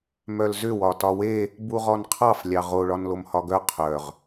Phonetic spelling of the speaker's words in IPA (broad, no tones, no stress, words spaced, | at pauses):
mœlzʏ wɒtɒwe | buʁɔnqʰɑf lʲɑʁo ɭɒnlomhɒɡœ qʰœʁ